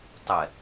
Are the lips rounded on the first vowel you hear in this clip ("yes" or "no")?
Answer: no